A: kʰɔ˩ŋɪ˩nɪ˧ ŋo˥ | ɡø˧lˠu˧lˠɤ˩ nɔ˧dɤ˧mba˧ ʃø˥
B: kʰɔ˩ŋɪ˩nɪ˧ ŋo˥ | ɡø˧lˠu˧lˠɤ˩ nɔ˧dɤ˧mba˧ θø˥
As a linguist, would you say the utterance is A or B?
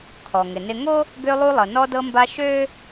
A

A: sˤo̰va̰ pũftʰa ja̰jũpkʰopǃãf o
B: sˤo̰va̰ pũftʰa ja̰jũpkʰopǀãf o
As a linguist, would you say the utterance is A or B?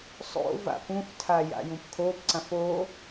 B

